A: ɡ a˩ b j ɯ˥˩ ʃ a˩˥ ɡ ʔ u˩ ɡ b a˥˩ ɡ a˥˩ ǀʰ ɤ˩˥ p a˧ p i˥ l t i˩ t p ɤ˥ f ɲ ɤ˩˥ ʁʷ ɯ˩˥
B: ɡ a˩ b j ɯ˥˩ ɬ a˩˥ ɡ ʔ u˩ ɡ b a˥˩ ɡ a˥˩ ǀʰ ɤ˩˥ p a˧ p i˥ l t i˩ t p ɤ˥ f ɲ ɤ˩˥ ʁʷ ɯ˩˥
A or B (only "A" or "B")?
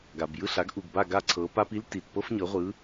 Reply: B